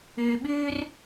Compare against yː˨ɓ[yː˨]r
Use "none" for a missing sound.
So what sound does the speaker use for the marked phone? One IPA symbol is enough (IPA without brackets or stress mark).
yː˦